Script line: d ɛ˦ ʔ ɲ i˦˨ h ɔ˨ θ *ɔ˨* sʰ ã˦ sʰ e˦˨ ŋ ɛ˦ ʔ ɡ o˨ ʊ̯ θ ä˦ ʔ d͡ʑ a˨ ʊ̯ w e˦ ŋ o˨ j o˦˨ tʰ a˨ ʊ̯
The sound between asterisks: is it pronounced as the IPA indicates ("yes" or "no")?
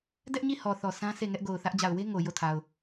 yes